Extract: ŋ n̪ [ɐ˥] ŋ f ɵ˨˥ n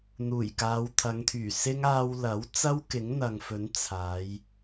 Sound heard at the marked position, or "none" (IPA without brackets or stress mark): ɐ˨